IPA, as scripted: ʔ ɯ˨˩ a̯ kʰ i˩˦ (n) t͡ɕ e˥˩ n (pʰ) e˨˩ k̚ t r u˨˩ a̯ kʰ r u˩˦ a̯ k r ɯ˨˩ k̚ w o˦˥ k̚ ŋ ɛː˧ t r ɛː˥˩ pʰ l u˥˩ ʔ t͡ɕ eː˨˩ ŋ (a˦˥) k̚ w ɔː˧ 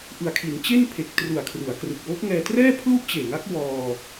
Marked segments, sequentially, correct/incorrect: correct, correct, correct

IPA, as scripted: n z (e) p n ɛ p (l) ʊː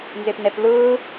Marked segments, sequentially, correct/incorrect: correct, correct

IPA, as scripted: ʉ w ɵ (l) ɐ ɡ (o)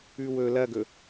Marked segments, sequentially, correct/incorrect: correct, incorrect

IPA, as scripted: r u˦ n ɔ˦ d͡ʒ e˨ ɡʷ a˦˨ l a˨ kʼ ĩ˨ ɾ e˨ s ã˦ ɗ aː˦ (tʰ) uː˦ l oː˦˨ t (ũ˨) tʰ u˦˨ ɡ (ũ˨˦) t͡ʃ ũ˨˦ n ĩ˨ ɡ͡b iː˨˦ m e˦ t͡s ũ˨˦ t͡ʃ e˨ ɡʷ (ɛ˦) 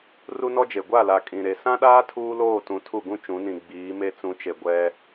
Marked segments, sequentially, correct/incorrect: correct, correct, incorrect, correct

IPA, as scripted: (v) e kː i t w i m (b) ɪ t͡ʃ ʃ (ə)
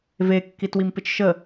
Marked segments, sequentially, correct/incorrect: correct, incorrect, correct

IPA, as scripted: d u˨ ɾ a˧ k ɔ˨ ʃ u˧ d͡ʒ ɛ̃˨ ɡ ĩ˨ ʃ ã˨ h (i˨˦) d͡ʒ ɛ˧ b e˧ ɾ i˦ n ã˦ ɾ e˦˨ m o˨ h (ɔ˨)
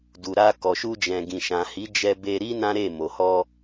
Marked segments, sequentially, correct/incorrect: correct, incorrect

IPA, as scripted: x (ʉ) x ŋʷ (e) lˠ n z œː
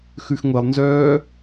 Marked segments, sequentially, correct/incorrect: correct, incorrect

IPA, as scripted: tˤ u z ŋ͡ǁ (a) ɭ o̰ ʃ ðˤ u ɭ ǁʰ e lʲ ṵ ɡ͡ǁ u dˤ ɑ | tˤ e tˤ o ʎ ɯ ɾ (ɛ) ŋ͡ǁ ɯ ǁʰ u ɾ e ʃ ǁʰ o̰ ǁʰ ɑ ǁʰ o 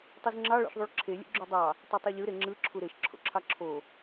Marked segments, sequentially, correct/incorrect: incorrect, incorrect

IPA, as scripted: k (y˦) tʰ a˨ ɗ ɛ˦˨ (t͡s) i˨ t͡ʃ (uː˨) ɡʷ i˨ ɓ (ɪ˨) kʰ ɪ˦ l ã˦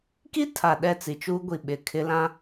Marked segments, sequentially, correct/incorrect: incorrect, correct, incorrect, correct

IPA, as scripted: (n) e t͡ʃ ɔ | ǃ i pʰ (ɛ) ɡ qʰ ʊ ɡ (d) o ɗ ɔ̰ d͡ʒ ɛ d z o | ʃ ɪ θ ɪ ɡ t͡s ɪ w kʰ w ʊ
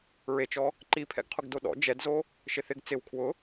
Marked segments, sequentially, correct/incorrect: incorrect, incorrect, correct

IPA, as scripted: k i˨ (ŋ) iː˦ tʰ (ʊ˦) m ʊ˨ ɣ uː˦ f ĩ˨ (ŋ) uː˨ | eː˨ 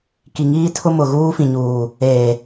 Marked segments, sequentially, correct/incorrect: correct, correct, incorrect

